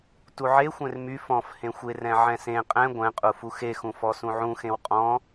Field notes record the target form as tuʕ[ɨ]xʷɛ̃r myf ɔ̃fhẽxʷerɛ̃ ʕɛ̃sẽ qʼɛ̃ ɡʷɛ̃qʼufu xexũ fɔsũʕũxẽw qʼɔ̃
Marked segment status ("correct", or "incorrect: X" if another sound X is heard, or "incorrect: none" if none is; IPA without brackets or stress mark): incorrect: e